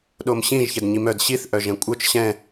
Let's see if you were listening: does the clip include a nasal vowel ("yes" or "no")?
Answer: yes